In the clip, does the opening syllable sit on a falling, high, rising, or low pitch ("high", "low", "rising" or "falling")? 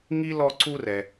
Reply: high